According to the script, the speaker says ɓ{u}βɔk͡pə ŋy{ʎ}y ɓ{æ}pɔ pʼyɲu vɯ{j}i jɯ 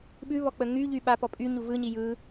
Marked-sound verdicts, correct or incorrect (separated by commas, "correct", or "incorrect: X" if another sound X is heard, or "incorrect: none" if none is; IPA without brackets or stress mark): incorrect: ʉ, correct, incorrect: a, incorrect: ɲ